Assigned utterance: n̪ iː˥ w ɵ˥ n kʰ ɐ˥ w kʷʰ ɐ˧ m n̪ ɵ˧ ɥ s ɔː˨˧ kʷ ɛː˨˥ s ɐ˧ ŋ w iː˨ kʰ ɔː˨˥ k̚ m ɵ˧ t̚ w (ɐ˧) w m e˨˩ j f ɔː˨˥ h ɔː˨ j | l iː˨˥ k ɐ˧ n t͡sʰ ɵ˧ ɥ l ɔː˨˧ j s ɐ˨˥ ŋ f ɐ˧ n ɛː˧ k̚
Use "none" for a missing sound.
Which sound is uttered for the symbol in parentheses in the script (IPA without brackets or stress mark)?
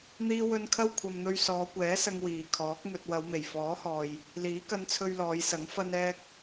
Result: ɐ˨˧